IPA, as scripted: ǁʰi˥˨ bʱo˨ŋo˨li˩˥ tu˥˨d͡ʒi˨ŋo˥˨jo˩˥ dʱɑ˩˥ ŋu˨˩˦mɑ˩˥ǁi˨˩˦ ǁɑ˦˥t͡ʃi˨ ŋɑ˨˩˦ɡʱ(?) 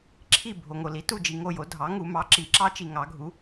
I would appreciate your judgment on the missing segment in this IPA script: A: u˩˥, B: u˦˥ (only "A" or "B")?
A